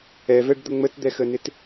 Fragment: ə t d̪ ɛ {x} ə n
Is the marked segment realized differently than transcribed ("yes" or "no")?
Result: no